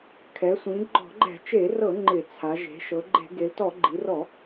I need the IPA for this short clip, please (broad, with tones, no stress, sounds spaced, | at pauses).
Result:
kʰ ɛ˩˧ sʷ ĩ˩˧ ɡ͡ǃ ɔ̤˧˩˧ ɡ͡ǃ ɛ̤˧˩˧ t͡ʃ e˧˩˧ r ɤ˧˩˧ ŋ͡ǃ ɪ˧˩˧ t͡sʰ a˩˧ ʒ e̤˩˧ ʃ ɤ˩˧ ɡ͡ǃ e̤˧˩˧ ɡ e˩˧ l t ɔ˧˩˧ ɡ͡ǃ i˩˧ r ɔ˧˩˧